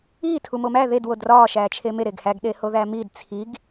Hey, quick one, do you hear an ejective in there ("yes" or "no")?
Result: no